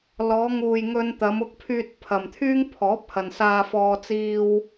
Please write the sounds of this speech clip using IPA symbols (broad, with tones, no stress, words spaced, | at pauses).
lɔː˨˧ŋuː˨jŋɵ˧n t̪ɐ˨˧m ʊ˧k̚pʰyː˧t̚ pʰɐ˨mt̪ʰyː˥ŋpʰɔː˨˥p̚hɐ˨n saː˧fɔː˧ t͡siː˧w